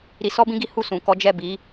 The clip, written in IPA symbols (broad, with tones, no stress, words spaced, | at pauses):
ɾi˧sɔ˦bĩ˦ɡi˦ hu˦˨sũ˨kɔ˨˦d͡ʒɛ˦˨ bi˨˦